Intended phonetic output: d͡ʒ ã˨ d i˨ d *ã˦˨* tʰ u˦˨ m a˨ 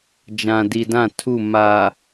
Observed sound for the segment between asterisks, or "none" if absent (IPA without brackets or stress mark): ã˦˨